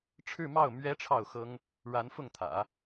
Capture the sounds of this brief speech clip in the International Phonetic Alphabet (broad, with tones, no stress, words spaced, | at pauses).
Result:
ʈ͡ʂʰɻ̩˥˧mɑ˥˩ʊ̯ mɥɛ˧˥ ʈ͡ʂʰɑ˥˩ʊ̯xɤ˥ŋ | ɻa˧˥nfʊ˥˩ŋt̪ʰä̰˨˩˦